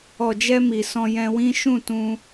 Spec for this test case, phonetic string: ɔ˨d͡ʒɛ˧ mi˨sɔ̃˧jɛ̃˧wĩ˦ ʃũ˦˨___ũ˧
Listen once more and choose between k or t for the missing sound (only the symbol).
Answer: t